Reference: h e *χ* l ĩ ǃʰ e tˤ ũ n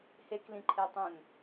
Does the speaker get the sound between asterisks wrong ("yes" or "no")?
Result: yes